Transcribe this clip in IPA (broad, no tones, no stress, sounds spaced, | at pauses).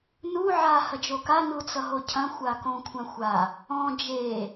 n u ʕ a h ɐ d͡ʒ o k a n u t͡s ʌ ɦ o cʰ ɐ̃ xʷ a k õ kʷʰ ã xʷ a | ɔ̃ d͡ʒ e